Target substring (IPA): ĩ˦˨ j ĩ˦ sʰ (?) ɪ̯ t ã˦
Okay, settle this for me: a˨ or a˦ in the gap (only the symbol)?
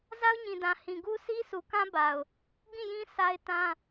a˦